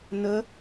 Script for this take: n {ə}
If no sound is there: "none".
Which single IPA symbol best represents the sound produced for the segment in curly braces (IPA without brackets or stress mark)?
ə